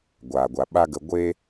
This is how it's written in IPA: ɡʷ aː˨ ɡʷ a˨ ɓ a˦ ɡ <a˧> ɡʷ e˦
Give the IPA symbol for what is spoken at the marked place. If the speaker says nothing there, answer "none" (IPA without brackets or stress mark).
ə˧